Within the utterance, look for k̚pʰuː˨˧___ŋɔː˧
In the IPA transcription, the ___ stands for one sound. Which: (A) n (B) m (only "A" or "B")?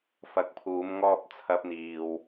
B